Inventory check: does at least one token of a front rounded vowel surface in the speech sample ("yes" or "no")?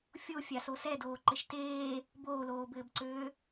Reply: yes